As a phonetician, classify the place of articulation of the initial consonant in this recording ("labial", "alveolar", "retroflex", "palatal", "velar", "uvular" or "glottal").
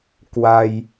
velar